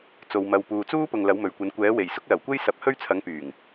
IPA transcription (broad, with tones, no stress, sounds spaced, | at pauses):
t͡s o˧ w m ɐ˧ w p uː˧ t͡s uː˥ p ʊ˨ ŋ l ɐ˨˥ w m ɵ˨ ɥ kʷ ɐ˨˥ n kʷ ɛː˨˥ w e˨˩ j s ʊ˥ k̚ l ɐ˨˩ w kʷ e˥ j s ɐ˨˥ p̚ h ɵ˥ ɥ t͡sʰ ɐ˨˥ ŋ p yː˨˩ ŋ